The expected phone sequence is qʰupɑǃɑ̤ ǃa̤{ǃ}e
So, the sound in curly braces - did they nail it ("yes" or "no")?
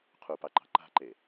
yes